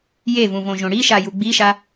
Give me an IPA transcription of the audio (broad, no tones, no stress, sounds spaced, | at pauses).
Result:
j e v ũ v õ ʒ õ ɽ i ʃ a j u ɡ͡b i ʃ a